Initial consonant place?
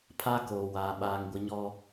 labial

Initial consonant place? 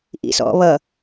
glottal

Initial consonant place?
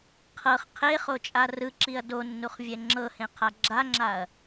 uvular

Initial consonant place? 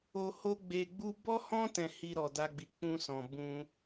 glottal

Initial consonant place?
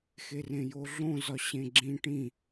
velar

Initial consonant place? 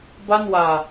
labial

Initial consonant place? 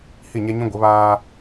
glottal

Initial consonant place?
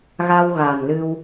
velar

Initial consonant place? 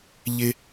palatal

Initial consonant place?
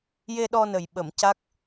palatal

